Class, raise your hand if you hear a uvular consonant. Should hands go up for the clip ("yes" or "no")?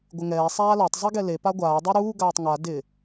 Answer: no